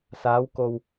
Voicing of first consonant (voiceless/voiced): voiceless